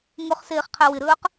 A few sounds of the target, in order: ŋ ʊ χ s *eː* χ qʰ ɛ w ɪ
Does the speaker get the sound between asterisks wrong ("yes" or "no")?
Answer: no